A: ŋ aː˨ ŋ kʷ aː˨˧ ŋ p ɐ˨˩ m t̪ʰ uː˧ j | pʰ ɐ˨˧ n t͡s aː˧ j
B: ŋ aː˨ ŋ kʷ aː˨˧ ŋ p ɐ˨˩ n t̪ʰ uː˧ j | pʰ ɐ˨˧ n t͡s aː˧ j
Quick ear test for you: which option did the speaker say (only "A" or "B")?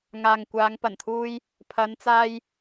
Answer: B